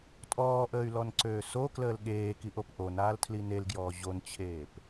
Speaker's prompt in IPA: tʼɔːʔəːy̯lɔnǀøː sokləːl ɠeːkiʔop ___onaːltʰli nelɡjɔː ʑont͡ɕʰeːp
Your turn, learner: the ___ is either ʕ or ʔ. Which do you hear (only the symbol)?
ʔ